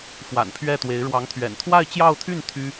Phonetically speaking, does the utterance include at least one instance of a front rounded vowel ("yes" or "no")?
yes